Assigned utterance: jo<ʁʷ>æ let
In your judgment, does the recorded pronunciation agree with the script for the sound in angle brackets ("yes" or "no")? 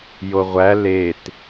yes